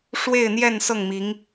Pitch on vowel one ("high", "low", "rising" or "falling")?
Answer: falling